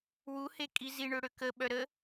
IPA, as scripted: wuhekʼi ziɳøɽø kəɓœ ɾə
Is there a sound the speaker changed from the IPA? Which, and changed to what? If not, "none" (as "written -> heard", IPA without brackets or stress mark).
none